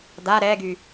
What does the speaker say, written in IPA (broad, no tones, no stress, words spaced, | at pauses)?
d̪a ɾɛɡy